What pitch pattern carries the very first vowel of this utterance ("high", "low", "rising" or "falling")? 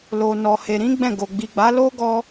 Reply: low